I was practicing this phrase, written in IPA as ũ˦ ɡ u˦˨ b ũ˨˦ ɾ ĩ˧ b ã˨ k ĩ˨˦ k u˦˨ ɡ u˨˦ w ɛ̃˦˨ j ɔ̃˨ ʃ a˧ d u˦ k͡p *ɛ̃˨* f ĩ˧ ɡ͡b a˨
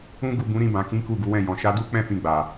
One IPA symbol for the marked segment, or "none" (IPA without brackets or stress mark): ɛ̃˦